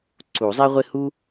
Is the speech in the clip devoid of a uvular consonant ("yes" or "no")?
no